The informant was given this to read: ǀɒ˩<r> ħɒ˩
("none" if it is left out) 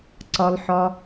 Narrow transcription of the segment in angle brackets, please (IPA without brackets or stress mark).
l